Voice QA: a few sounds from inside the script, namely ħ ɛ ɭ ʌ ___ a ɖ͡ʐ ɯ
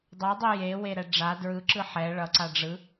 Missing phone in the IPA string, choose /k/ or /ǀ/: ǀ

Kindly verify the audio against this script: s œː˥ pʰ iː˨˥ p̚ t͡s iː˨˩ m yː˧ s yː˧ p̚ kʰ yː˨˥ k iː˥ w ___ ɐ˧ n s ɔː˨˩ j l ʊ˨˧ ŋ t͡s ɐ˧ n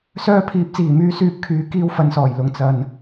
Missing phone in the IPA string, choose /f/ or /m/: f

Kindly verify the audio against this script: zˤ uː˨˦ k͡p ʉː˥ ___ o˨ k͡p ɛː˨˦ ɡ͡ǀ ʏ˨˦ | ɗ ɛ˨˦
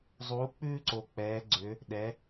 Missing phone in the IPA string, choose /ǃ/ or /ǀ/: ǀ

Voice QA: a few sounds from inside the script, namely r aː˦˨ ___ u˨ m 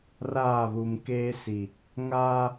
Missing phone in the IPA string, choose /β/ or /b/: β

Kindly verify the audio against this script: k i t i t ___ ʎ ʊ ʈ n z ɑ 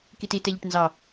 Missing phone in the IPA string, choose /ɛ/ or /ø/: ɛ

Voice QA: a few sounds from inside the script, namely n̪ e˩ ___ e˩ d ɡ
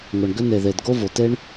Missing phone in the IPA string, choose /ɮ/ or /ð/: ð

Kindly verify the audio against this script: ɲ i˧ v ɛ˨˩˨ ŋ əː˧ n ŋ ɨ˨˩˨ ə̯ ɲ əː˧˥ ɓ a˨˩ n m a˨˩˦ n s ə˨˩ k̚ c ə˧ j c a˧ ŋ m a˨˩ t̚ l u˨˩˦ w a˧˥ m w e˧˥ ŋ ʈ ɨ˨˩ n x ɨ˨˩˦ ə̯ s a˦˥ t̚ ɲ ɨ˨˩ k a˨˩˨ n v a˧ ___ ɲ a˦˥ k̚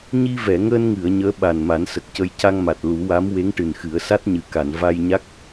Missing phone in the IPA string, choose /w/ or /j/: j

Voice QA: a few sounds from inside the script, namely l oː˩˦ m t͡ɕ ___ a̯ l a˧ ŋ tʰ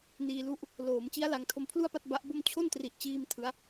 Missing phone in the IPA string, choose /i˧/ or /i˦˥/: i˦˥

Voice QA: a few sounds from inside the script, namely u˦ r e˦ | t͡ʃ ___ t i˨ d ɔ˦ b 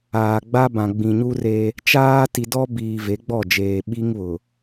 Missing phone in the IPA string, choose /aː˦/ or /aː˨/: aː˦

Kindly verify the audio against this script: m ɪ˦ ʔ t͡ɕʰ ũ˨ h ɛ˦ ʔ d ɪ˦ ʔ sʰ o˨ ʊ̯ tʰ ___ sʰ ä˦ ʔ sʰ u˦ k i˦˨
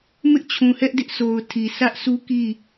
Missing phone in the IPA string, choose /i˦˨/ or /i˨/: i˨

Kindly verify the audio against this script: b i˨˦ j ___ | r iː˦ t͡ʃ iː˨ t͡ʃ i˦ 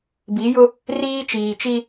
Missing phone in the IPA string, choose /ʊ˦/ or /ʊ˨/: ʊ˦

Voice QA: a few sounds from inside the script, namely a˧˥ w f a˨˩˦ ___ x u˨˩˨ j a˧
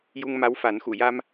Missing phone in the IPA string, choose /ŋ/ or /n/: n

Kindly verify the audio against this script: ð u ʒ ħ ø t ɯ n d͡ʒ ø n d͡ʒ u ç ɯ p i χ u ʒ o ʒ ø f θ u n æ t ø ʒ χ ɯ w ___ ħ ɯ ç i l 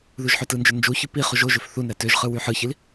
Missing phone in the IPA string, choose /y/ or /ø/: y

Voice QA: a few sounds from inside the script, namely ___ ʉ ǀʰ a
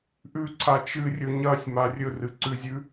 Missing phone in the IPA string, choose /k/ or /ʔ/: ʔ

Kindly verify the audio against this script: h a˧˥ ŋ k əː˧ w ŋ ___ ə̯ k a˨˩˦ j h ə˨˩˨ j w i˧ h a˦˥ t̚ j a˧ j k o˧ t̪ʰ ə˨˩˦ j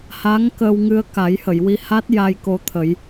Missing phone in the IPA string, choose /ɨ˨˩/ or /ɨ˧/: ɨ˧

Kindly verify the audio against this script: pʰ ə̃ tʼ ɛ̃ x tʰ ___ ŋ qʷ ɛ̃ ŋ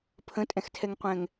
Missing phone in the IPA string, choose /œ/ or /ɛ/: ɛ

